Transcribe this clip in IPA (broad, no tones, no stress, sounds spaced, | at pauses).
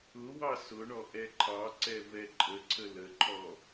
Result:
ʊ w ɑ s ʊ ɳ ɔ ʔ ɛ ǃʰ ɑ ǀ ɛ v ɛ ǃʼ ə ǀʰ ə l ə ǃʰ ɔ